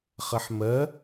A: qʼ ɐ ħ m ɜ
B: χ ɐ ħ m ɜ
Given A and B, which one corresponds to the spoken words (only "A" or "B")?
B